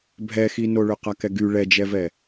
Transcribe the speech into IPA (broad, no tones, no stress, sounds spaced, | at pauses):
bʱ ɛ x i n o ɭ ʏ q a k ɛ ɡ y ɭ ɛ d͡ʒ ɛ v ɛ